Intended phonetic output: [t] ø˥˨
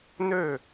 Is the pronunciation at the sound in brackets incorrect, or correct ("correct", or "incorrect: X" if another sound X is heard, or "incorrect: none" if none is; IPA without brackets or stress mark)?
incorrect: n